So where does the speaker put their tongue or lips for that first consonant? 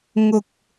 velum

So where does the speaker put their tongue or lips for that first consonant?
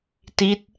tongue tip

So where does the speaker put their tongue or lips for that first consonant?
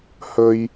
throat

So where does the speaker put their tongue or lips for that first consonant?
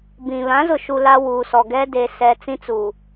lips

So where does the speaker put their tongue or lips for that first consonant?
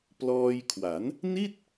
lips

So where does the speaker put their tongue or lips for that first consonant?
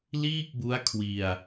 tongue tip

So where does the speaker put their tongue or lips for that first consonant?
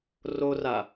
tongue tip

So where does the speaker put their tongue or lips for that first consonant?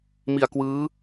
lips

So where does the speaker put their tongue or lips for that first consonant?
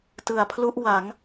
tongue tip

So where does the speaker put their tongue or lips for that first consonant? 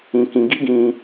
velum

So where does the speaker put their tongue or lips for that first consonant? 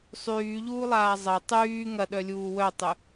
tongue tip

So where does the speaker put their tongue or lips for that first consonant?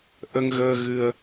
throat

